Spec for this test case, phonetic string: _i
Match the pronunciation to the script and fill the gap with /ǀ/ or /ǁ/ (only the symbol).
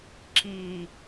ǁ